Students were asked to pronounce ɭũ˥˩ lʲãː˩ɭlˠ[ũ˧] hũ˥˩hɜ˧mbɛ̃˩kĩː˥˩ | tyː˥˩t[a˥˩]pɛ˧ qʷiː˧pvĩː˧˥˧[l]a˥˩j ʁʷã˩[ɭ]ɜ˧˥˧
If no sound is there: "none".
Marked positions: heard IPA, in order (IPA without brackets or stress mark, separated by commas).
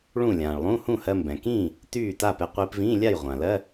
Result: ũ˧˥˧, a˥˩, lʲ, l